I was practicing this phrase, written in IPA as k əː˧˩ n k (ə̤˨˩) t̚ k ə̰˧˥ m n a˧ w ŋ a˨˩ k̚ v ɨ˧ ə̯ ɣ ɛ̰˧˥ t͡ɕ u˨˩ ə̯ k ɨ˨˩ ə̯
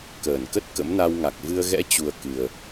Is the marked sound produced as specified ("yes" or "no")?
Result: no